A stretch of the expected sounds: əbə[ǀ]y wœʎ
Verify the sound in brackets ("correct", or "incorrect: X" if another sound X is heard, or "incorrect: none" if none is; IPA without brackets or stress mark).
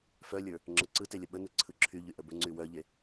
incorrect: ŋ͡ǀ